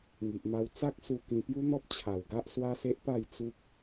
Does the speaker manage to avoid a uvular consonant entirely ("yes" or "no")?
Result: yes